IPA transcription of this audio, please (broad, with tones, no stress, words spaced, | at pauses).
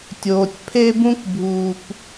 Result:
tʲoː˨tʲpʰe˥bũ˥kbʱuː˨p